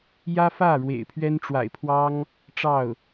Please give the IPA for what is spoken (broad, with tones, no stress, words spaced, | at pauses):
jä˥fä˥˩ ɻwḛ˨˩ɪ̯pʰɥɛ˥nʈ͡ʂwa̰˨˩ɪ̯pʰwɑ˥ŋ | ʈ͡ʂɑ˥˩ʊ̯